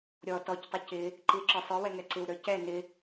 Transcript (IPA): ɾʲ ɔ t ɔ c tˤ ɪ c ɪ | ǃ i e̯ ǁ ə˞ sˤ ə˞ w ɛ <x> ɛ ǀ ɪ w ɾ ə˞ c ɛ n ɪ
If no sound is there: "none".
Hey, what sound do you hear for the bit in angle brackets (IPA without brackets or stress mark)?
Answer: ŋ